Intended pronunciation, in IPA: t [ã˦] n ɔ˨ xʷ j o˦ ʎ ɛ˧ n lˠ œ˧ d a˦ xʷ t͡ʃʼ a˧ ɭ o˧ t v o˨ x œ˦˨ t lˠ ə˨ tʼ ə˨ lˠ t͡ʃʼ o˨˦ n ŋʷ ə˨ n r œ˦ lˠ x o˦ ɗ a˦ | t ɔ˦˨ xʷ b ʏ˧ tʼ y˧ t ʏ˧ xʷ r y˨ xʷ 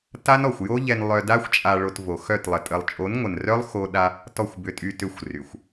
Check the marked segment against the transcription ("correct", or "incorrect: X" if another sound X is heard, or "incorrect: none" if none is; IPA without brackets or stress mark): incorrect: a˦